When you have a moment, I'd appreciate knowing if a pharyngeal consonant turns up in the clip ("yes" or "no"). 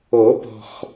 no